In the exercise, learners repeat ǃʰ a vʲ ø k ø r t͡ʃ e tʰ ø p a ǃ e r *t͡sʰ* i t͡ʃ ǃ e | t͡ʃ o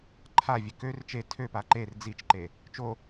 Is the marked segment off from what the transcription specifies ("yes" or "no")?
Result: yes